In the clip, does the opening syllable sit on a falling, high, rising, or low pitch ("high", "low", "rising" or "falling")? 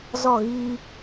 falling